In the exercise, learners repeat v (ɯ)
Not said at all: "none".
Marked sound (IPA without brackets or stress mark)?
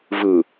ɯ